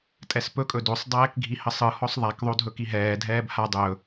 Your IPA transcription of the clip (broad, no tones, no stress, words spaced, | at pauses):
tʼɛspɵkʼɵ dosˤdˤɛːk ɡʱihəsˤɯhɔsˤ ðˤakðˤo dʱɵkiɦɛːdʱɛːb ha dˤɵ